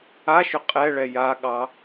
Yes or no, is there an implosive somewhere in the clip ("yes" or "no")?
yes